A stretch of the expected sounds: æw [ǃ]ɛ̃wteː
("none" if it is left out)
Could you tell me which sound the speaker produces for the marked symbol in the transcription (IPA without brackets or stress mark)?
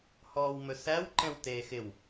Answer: ǃ